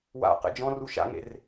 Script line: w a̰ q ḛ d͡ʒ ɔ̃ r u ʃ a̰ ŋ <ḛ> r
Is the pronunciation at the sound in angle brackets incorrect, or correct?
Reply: correct